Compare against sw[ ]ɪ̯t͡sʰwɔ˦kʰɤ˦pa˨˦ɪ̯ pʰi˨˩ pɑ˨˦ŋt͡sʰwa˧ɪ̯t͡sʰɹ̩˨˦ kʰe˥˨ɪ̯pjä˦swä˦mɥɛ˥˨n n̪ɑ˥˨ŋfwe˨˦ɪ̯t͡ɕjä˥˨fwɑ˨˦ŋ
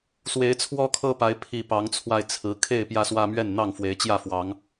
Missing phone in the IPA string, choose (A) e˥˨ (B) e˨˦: B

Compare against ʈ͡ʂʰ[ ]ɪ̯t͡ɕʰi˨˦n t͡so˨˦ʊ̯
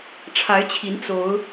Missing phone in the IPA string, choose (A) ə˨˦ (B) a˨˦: B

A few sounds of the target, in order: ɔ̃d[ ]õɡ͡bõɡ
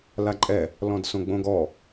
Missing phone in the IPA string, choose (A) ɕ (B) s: B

